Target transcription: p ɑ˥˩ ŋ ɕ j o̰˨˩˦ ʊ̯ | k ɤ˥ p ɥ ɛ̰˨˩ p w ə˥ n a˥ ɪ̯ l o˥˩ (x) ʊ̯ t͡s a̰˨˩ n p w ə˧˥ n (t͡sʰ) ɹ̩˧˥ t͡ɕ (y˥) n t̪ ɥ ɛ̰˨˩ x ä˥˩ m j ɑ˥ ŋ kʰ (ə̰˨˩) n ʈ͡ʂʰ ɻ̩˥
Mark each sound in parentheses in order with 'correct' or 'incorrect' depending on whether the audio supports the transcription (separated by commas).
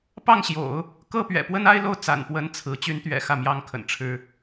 incorrect, correct, incorrect, correct